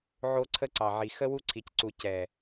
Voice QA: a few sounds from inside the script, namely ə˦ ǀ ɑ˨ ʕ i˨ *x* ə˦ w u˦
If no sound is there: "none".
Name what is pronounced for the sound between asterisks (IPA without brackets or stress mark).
x